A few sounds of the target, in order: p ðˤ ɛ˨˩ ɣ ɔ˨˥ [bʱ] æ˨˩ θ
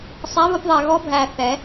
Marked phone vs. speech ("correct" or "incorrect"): correct